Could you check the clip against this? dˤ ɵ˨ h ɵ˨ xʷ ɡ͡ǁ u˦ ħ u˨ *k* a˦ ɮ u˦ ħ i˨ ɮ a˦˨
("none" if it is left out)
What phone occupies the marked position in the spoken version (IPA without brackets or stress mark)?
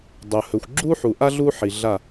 ʔ